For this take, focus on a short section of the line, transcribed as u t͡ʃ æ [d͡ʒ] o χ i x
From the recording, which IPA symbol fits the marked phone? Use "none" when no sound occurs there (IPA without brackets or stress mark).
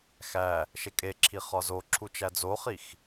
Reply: d͡z